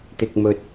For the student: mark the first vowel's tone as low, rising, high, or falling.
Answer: low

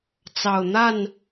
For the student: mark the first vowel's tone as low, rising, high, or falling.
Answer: low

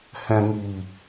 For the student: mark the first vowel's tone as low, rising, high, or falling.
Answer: low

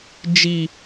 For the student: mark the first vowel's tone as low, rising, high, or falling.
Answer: high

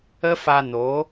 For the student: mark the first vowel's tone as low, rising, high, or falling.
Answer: high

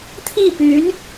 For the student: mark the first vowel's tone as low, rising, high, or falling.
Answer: falling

